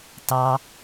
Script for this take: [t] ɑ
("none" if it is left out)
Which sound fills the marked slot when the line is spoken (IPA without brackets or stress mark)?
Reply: t